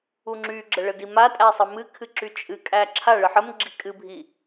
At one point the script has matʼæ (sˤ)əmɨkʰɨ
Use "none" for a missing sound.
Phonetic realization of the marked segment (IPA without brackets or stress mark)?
sˤ